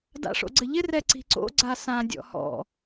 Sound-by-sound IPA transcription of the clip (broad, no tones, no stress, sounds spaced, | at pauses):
d a̰ ʂ o̰ ɡ͡ǀ ɘ ʎ ɪ r ɛ ǀ i̤ ǀ o̰ ɡ͡ǀ a s ã dʲ ɔ̰ h ɔ̰